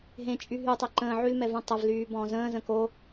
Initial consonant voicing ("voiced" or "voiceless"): voiced